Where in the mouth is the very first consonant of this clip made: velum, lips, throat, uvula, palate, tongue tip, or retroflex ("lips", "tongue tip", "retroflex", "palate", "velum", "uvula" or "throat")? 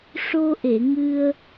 retroflex